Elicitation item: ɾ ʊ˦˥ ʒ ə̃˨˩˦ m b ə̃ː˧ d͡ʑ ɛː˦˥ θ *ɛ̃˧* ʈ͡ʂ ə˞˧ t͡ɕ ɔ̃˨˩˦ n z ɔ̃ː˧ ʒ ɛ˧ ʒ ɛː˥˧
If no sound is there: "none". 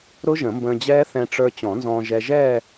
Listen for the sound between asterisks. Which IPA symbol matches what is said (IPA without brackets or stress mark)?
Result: ɛ̃˧